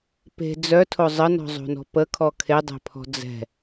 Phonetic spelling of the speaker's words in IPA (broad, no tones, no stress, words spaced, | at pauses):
pe̤ d͡zœtʰo zˤənɔ̤zˤo̤nɔ̤ pəkʰɔ kʰedˤɛ̤pʰɔ̤ d͡zɛ̤